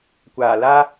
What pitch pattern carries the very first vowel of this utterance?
low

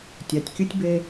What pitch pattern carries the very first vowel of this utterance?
low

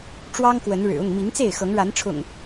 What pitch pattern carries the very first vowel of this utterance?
high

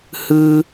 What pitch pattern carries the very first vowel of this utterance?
high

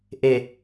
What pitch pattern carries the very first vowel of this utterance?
low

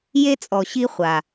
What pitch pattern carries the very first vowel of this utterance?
high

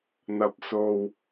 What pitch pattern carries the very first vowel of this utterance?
low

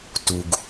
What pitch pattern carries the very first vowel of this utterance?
low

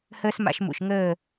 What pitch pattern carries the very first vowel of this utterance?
high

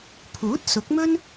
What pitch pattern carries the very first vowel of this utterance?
rising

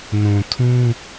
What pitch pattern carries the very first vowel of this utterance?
low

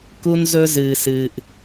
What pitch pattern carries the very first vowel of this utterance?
high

